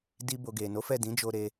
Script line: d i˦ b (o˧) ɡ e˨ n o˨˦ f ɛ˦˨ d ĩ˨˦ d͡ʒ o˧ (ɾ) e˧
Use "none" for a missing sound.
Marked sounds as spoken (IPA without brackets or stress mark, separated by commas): o˧, ɾ